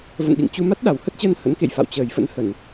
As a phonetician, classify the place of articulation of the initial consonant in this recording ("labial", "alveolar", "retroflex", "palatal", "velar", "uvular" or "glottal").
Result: labial